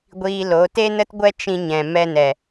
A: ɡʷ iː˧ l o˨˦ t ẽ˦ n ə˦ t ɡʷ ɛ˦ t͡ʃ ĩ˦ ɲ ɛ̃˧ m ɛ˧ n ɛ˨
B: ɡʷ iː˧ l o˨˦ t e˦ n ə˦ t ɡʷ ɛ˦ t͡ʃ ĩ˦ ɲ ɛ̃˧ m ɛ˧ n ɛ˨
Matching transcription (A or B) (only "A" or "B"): B